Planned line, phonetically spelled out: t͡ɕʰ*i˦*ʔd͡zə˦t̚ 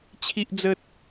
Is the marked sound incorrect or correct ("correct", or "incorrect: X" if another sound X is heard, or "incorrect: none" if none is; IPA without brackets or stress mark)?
correct